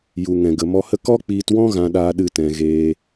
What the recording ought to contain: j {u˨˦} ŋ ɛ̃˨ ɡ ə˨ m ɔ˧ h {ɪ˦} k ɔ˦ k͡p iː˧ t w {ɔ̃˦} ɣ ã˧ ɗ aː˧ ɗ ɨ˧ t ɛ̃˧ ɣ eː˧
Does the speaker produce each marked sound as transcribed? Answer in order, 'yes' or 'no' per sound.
no, no, yes

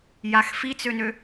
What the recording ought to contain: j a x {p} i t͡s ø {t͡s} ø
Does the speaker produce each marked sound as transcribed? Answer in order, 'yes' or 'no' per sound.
no, no

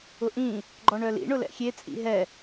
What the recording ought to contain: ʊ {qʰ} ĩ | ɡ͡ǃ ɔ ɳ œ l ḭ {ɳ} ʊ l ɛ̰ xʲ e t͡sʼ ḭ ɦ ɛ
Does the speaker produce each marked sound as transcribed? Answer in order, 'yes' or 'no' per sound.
no, yes

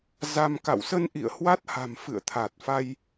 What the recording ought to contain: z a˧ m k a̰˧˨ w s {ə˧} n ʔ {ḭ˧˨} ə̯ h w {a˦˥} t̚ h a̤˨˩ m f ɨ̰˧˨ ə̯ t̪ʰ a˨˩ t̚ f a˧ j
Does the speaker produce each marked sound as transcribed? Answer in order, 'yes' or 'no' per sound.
yes, yes, yes

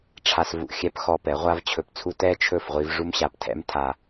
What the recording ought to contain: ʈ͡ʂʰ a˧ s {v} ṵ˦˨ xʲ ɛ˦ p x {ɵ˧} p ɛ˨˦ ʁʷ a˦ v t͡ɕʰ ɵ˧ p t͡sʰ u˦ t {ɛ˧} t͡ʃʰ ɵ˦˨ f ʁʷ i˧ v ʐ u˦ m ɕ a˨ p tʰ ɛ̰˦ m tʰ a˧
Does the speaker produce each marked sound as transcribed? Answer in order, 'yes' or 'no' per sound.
yes, no, no

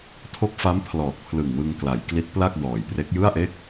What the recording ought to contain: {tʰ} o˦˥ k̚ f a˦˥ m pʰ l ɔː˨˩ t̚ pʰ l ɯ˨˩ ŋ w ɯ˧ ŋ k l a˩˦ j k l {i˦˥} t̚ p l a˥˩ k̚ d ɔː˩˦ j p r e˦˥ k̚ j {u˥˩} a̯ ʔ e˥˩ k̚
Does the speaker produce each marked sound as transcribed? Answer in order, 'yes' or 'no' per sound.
yes, yes, no

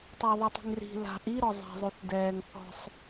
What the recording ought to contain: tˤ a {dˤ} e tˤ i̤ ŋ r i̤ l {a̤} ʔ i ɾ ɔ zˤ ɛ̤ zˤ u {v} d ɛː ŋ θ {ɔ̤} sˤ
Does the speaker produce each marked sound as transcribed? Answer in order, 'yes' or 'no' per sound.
no, yes, no, yes

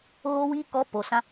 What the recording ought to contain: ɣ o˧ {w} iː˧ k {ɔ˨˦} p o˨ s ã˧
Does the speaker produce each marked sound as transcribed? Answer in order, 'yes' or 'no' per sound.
yes, yes

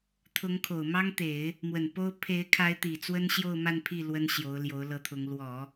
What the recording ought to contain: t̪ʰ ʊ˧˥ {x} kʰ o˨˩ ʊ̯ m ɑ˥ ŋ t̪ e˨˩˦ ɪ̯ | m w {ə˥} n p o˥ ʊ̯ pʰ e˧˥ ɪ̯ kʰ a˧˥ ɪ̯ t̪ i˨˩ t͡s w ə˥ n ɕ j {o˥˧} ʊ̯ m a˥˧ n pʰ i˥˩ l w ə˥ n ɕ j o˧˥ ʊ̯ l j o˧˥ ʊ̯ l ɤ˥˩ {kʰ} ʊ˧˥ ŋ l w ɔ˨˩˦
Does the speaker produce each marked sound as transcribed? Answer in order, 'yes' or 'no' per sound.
no, no, yes, no

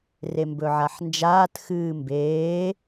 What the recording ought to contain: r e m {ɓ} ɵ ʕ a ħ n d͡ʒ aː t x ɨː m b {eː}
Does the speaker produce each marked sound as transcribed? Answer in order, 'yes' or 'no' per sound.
no, yes

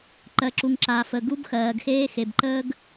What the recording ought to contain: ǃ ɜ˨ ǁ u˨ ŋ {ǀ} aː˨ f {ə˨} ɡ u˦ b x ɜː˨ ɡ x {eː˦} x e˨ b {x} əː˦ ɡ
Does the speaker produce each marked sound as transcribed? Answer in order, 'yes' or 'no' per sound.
no, yes, yes, no

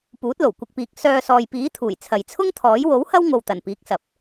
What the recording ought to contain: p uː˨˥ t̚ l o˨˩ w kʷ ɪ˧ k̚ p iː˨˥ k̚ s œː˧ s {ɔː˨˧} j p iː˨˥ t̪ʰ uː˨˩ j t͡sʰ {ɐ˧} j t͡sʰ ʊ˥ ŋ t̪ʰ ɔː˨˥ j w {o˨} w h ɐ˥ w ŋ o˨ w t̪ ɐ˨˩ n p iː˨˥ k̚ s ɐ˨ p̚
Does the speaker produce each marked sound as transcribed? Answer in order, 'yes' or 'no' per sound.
no, no, no

